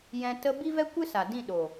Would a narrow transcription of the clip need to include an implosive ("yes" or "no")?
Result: yes